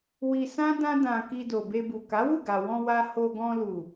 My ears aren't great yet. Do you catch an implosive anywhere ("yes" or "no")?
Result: no